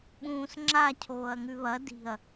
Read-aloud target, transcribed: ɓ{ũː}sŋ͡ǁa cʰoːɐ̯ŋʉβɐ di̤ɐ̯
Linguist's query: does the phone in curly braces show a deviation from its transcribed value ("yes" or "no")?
no